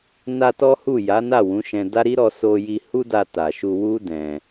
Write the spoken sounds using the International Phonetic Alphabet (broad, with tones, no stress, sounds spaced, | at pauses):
n a˧ t ɔ˦ h u˦˨ j a˨˦ n a˦˨ w ũ˨˦ ʃ ɛ̃˧ d a˦ ɾ i˦ ɾ ɔ˧ s o˧ j i˧ h u˦ d a˧ t a˨ ʃ u˧ w u˦ d ɛ̃˧